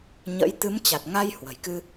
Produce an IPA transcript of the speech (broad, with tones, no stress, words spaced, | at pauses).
ɲə̰˧˥j t̪ɨ˨˦mt͡ɕa˨˩t̚ŋa˧j hwə̤˨˩jkɨ˧